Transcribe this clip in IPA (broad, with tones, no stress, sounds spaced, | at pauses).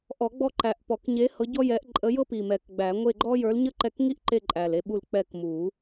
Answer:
ʔ ɔ˨˩˦ ɡ͡b ɔ˦˨ ǃ æ˨˩ ʔ p ɔ˨˩˦ k ɲ e˧˥ h ɤ˧˥ ɟ ɔ˥ j ɛ˧˥ ʔ ǃʼ ə˧˥ j ɤ˥ p i˨˩ m ɛ˨˩ k ɡ͡b æ˨˩˦ ŋʷ e˦˨ ɡ͡ǃ ɔ˥ j ə˞˧˥ l ɲ ə˥ ǃ ɛ˦˨ k ŋ i˥ ʔ ǃ e˦˨ ǃʼ æ˨˩ l e˦˨ ɓ u˦˨ l k͡p ɛ˦˨ k m u˨˩˦